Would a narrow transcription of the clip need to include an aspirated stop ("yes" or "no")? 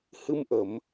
no